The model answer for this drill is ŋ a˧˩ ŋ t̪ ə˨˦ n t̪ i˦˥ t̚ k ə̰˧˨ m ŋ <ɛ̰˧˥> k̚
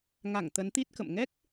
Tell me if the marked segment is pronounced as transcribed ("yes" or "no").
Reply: no